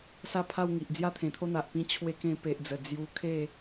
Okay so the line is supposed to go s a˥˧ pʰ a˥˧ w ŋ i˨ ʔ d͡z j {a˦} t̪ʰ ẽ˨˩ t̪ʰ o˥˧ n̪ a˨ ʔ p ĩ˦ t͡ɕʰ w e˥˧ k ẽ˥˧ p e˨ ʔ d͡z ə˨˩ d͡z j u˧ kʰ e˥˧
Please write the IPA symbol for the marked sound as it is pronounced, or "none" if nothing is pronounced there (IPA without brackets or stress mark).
a˦